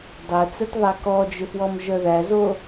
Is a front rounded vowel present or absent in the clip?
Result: present